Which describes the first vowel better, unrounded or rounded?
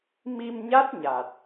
unrounded